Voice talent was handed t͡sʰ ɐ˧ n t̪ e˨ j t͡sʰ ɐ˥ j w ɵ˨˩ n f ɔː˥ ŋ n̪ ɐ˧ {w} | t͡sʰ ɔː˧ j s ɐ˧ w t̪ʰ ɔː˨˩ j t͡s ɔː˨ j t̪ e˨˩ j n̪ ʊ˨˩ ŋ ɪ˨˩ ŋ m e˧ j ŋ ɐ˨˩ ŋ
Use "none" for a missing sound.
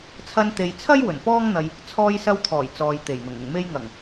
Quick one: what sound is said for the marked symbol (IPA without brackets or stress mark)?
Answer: j